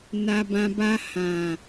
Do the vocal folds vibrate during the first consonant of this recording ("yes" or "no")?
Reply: yes